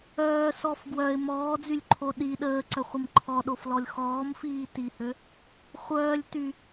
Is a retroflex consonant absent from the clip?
yes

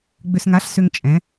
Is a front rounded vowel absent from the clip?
no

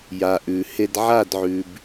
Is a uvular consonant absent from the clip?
yes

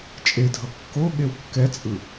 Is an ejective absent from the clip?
no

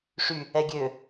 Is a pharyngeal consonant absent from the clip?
yes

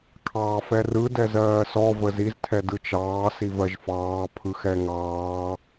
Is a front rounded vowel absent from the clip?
yes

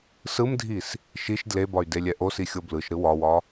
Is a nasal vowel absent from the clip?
yes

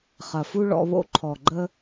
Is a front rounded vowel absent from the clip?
yes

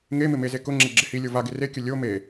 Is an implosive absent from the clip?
yes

